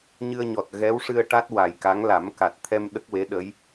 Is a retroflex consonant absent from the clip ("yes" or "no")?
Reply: no